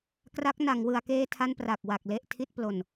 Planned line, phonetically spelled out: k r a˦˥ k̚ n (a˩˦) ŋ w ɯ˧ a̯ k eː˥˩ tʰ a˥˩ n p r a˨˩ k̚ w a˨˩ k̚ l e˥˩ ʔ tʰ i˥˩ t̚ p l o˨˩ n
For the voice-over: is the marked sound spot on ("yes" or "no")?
yes